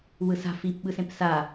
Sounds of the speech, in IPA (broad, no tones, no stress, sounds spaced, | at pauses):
w ɯ s a̤ f i p ɓ ɯ s ẽ p s a